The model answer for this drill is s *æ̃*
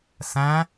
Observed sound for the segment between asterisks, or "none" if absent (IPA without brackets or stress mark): æ̃